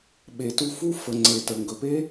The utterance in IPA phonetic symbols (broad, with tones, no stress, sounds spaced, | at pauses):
ɓ e˨ t u˧ f u˦ f ə˨ ŋ͡ǀ e˨ t ə˨ ŋ ɡ ɵ˨ p e˦